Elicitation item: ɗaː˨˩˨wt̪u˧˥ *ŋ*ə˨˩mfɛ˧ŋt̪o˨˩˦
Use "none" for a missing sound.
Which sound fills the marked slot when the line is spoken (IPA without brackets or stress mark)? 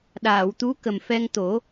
k